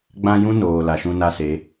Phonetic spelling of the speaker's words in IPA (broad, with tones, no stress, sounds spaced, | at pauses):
ɡ͡b ã˦ j ũ˦ n oː˨ l a˨ ʃ ũ˦ n a˦ s e˨˦